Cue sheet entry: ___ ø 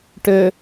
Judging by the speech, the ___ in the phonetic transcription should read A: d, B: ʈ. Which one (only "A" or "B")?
B